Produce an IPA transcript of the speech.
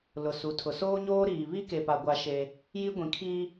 lʊ˨ su˨˦tʰʊ˨ soː˦ɲoː˦ɾiː˨ βi˦ke˨pa˨ ɡʷa˦ʃe˦ | ji˦ ɡʷĩ˨kʰiː˦

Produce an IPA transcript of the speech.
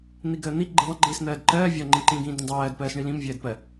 n̪iɡəːn̪i ɡ͡ǃiðˤə̃ ɡ͡ǃiːsn̪ɜːdǃɜː vʲɒ ŋ͡ǃĩǃĩːɡĩːdd̪ə̃ dˤɜːd pɜːsɳilĩm vʲɜːdpɜ

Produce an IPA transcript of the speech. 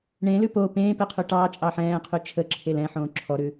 ɳẽlʉ po pẽːpeqʰʉ ʈɑːt͡ʃʼɑːħ ɛ̃ːqʰy t͡ʃʰəǁʰel ɛ̃ħõː ǁʰɔɾʉ

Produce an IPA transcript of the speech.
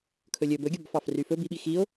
kʰɵlʲɵ bɵɡʲɒbfɑf ryfɵ biɓi xio̯

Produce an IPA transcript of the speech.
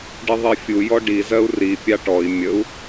ɖiðˤifʲu jɔɖi zɜu̯ri pʲɑʈɔi̯ mʲəu̯

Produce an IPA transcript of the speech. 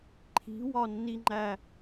ǃʰi̤wɒnːiŋ͡ǃæ

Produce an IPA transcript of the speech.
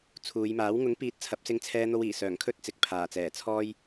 t͡sʰuː˨˧jmaː˨˥w ŋʊ˨˥ŋpiː˨˥t̚ t͡sʰɐ˨˥p̚sɪ˧ŋt͡sʰɛː˧ n̪o˧wiː˨˩ sœː˨˩ŋkʰɵ˧t̚ t͡sɪ˨k̚pʰaː˨˩t͡sɛː˨˩ t͡sʰɔː˧j

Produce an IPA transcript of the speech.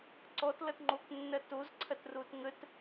ǀɔtlʌt ŋ͡ǃoknːɐ tozǀʰɐtrot ŋət

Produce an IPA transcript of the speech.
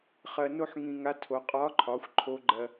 χɜ˧no˥ħŋĩ˧ŋa˧˥ tʰo˩˧qʼɒ˧˥ǃʰɒ˩˧xʷ ǃʰo˧˥ɡ͡ǃɜ˧

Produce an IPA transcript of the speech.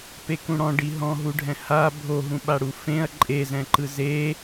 pekũɽɔ̃ ɖiɦɔ̃ɦuɖʱɛ̃ ha bʱoɦũɓaɽu fẽɐ̯ ǃʼezɛ̃ǃɯ ze

